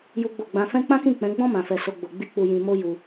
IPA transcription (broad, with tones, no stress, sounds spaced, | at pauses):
j u˦ ɡ͡b o˦˨ ɡ͡b ã˧ f ɛ̃˦ k͡p ã˦ k ĩ˦˨ k͡p ɛ̃˨˦ ɡ͡b ɔ̃˦ m ã˧ f ɛ˧ s o˧ ɡ͡b o˧ ɡ͡b i˦ k͡p u˧ j ĩ˧ m o˦ j u˧